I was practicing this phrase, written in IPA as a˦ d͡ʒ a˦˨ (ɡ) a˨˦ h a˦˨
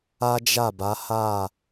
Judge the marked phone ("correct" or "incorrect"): incorrect